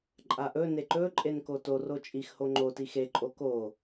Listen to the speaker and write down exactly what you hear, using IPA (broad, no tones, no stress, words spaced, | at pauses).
ǃʼaʔɵ neǃɵ ǃʼenkoto rot͡ʃʼix hoŋ͡ǃo tixe ǃʼoko